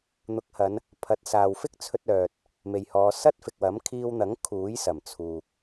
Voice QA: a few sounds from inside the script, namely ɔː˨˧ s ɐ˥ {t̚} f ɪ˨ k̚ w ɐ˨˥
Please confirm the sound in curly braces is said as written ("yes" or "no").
yes